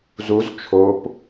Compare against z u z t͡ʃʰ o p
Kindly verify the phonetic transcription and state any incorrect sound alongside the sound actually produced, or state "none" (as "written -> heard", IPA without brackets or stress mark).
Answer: none